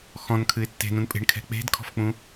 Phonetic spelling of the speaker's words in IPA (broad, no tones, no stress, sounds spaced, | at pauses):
x ɔ̃ n kʰ ɨ ɪ̯ tː e̤ n ũ n pʼ e̤ ɳ kʰ ɛ̤ k͡p e̤ d kʰ ɔ̤ f k͡p ũ